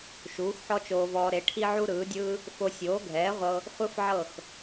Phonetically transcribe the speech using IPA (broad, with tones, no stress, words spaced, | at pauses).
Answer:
ʃuː˩˥xħɔ˥t͡ʃoː˧vɔː˧ ɾe˩˥ʈʰi˥ʕu˥ ɾɯː˩˥dʲɯː˥ | fo˧sʲoː˩˥ɡʱɛː˩˥ʁʷɤ˧ | χʷɯ˥fʕɤ˥˩x